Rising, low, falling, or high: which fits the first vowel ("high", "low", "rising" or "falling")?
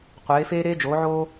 rising